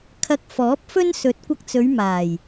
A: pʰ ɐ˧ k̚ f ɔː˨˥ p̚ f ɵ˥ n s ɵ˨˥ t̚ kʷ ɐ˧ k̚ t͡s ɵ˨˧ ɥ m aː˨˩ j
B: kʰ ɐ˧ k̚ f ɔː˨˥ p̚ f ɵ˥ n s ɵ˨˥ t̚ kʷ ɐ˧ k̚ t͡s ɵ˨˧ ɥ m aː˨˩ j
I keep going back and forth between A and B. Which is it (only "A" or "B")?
B